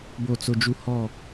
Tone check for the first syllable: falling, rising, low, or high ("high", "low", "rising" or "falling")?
falling